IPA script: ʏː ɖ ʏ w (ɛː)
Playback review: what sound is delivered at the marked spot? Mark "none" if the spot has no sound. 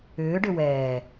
ɛː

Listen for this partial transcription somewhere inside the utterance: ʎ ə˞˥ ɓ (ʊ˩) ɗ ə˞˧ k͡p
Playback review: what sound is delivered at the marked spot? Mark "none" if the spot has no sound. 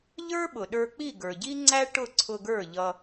ʊ˩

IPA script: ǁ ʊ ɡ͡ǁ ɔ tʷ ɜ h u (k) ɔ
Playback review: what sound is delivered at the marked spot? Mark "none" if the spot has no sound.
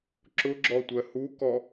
k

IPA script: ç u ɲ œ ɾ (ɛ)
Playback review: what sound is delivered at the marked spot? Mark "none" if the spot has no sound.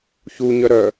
œ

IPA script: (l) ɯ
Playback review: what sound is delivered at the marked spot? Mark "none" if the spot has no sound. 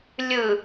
lʲ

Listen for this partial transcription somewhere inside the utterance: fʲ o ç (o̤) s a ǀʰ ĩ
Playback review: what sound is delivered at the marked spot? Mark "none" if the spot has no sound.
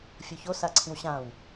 o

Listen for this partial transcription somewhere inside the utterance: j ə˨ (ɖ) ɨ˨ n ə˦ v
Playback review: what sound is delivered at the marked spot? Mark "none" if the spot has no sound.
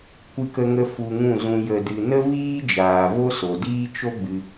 d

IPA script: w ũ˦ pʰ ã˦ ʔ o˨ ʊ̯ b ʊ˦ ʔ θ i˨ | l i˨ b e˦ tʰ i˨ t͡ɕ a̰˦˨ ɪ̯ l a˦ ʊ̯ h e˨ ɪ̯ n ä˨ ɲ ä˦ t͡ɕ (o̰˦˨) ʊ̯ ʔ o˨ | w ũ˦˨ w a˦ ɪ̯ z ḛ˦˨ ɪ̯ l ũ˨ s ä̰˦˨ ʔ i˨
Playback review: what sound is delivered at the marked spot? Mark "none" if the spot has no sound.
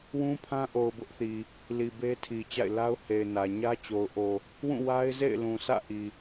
o˨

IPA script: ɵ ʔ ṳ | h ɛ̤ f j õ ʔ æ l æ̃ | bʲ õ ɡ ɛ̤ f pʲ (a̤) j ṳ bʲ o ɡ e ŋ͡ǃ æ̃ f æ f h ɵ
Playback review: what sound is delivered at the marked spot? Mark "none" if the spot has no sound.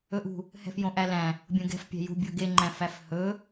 æ̤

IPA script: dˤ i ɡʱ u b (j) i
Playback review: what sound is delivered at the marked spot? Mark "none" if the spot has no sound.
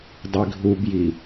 j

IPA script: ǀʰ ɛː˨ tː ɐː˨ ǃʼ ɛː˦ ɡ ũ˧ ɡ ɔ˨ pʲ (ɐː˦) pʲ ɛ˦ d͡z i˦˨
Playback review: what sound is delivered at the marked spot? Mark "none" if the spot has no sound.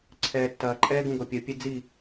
ɐː˨˦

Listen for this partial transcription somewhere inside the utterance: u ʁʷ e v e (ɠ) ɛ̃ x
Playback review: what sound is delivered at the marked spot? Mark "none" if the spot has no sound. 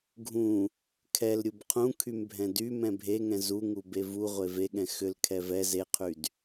ɠ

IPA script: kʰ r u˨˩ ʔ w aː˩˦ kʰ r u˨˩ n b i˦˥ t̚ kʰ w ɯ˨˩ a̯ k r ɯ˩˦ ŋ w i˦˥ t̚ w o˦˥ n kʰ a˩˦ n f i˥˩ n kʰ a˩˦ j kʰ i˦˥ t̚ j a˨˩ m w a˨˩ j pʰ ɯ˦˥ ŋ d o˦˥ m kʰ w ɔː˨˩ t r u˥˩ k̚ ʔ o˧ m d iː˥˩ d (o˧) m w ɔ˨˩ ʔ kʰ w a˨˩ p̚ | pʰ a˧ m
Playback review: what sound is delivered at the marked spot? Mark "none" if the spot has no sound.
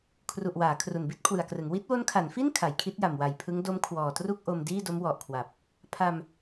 o˦˥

